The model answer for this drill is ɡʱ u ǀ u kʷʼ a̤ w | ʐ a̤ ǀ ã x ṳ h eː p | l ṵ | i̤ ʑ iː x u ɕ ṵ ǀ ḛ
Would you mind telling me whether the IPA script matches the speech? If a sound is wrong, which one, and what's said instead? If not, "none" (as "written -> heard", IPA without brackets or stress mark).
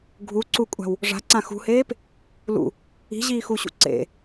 none